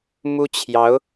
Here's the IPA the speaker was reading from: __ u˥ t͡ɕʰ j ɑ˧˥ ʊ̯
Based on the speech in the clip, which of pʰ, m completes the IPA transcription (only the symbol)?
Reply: m